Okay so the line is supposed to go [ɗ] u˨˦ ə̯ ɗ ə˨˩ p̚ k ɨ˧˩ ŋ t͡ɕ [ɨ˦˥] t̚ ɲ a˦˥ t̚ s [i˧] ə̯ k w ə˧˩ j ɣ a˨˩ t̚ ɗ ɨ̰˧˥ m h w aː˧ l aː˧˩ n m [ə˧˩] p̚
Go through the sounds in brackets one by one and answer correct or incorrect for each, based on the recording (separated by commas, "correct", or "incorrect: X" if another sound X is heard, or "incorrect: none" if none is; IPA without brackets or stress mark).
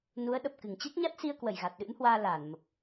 incorrect: n, correct, correct, incorrect: ə˨˩